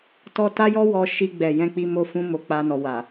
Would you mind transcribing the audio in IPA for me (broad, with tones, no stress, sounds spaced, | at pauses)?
t ɔ˧ t a˦ j ɔ˦ w ɔ˧ ʃ i˧ ɡ͡b ɛ˨ j ɛ̃˧ k͡p i˧ m o˧ f ũ˧ m o˧ k͡p a˧ n ɔ˨ w a˨